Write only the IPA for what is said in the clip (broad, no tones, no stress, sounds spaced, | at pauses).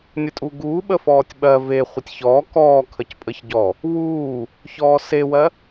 nʲ ə tʼ u ɡ uː ɓ ə f ɔː tʲ ɓ ɜ v e χʷ ə tʲ ç ɔː k ɔː kʰ ə c pʼ ə ç ɟ ɔ | w uː | ç ɔː s e w ɜ